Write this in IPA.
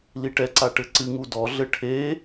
liʈɛǀa ʈɘǀɨŋu dɔɮɘ ʈʰe

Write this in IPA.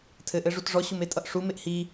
tʰɘʔɘʐut ʐɔɕumetʼʌʔ ʂumeʔ hi

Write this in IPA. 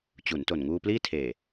t͡ɕu˩˦nto˨˩n ŋuː˧pliː˥˩tʰeː˨˩

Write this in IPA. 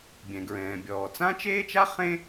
bʲɛ̃˩ɡɹɛ̃ː˩ bʲɔː˩t͡sã˥t͡ʃeː˥t͡ʃa˥ χẽ˥

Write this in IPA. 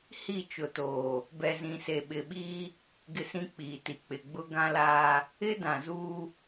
hi˦˨t͡ʃʊ˨toː˨ | bɛ˨zĩ˨ se˨ɓɪ˨ɓiː˦ | ɡɪ˦sĩ˦k͡piː˨ti˨ k͡pɪ˨ɡ͡bʊ˦ ɡã˦laː˦ | ɪ˦ dã˨zuː˦

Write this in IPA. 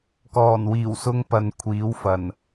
kɔː˨˩nwiː˨˩wsʊ˧ŋ pɐ˨n kʷʰiː˨˥wfɐ˨˩n

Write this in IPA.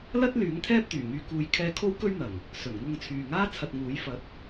lɐ˥t̚ lyː˨˥ŋt̪ʰɛː˥p̚t̪yː˨˩ ŋyː˨kuː˨jkʰɛː˧ kʰo˥wkɵ˥ɥn̪ɐ˨˩ŋ | sɵ˨˩nŋʊ˧ŋt͡sʰyː˨ŋaː˥ t͡sʰɐ˧t̚ŋuː˨˥j fɐ˨˥t̚

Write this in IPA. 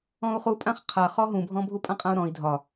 ɔ̃u̯χupʼãχ qʰa χɔɦũbʱɔ̃ bʱupʼãqʼãu̯ɾɔ̃i̯ dʱɒ

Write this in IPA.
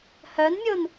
hœnmʲon

